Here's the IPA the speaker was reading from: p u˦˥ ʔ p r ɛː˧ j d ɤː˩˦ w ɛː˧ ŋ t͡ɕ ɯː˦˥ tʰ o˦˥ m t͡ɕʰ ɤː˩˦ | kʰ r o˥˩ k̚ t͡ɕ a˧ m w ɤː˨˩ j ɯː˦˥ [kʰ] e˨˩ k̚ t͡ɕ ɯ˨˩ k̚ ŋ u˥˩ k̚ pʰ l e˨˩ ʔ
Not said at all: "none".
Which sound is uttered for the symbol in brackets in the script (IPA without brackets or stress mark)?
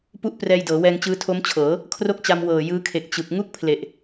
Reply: kʰ